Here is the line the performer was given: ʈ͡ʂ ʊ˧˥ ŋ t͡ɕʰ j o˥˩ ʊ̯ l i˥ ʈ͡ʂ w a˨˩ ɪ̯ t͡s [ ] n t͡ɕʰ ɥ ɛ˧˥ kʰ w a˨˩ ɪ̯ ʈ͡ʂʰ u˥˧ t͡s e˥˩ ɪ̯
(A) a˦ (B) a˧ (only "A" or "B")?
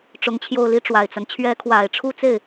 A